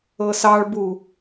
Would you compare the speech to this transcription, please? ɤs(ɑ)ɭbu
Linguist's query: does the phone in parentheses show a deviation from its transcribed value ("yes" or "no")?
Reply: no